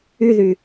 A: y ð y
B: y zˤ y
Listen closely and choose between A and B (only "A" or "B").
A